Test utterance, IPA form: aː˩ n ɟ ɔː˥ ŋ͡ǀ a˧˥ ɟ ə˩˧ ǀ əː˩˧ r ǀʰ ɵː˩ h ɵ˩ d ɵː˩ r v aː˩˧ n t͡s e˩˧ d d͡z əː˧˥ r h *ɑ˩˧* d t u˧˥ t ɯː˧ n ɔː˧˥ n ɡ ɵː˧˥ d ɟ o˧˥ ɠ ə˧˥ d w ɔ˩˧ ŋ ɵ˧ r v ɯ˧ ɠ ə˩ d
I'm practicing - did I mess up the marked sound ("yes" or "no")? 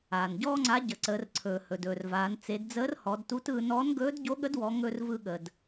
yes